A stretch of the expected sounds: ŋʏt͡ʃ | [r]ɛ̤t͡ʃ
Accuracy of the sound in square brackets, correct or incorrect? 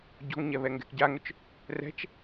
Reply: correct